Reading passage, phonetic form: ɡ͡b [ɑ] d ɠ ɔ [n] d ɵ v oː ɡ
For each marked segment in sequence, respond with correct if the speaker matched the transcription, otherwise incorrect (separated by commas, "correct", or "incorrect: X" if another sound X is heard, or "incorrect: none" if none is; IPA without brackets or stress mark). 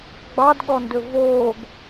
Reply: correct, correct